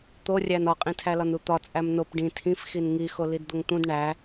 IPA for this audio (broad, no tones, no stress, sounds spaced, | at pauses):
t̪ o rʲ æ n ɒ qʼ ĩ tʰ æ l ɒ n u t̪ ɒ t͡sʼ æ m n o p ɖ ĩ tʰ ĩ f x i n ŋ i x o l i d d̪ o ŋ t̪ ũ d ɳ æ